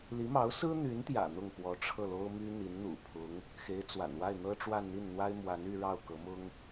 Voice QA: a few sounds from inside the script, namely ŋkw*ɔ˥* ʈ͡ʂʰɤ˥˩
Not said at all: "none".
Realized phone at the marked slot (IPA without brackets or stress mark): ɔ˧˥